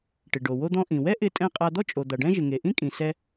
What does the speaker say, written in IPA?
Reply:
ʈ ɪ˩ ɖ o˩ w o˧ d̪ ɔ̃˧ ʔ ĩ˩ w ɛ˥ ʔ ɪ˧ tʼ ɛ̃˧ qʼ a˧ d̪ ɔ˥ t͡ʃʼ o˩ d̪ a˩ ɖ ɛ̃˥ ʒ ɪ˩ ŋ e˩ ʔ ĩ˥ kʼ ĩ˩ s ɛ˧

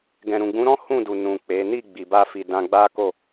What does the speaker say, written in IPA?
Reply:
ɡ ɛ̃˨ ɾ ũ˨ ɡ͡b ũ˨˦ ɾ ɔ̃˦ h ũ˦˨ d u˨ n ũ˨ k͡p e˨˦ n i˦˨ ɡ͡b i˨ b a˧ f i˨ d ã˧ ɡ͡b a˦ k o˦˨

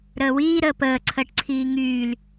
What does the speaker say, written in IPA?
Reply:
ɾ əː w iː ɾ əː p əː ǀʰ əː ʈ ǀʰ iː ŋ yː l

